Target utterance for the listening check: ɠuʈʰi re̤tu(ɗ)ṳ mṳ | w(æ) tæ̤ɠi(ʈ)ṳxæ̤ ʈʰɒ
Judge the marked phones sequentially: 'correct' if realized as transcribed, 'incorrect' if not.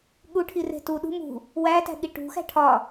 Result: correct, correct, correct

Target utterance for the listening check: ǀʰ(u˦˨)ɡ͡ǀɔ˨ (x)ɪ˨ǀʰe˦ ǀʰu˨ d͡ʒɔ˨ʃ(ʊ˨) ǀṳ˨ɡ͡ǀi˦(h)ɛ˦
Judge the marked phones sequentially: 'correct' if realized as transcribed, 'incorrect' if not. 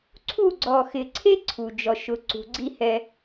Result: correct, correct, correct, correct

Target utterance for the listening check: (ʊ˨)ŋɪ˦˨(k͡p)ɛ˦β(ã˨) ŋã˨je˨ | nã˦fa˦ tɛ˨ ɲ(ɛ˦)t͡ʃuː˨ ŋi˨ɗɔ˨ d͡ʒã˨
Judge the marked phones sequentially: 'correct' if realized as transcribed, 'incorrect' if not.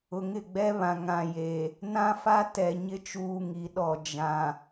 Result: correct, incorrect, correct, incorrect

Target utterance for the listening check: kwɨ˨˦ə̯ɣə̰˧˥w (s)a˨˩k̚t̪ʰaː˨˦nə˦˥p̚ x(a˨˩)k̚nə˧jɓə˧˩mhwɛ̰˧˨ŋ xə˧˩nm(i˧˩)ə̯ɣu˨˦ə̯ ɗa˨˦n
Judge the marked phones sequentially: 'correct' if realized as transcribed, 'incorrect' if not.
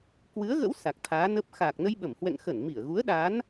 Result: correct, incorrect, correct

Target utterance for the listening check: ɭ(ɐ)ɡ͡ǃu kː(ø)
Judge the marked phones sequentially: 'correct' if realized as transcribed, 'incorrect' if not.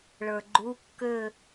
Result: incorrect, correct

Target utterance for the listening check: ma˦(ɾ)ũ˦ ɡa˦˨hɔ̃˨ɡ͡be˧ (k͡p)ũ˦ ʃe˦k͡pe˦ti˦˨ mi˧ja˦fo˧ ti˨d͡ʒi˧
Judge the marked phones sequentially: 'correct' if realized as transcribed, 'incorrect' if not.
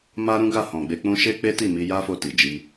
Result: correct, correct

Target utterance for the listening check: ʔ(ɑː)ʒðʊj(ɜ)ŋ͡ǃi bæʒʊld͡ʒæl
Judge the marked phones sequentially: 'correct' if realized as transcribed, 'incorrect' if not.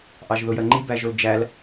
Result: incorrect, correct

